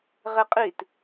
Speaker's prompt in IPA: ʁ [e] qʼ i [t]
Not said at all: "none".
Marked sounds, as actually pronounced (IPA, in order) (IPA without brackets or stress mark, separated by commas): e, t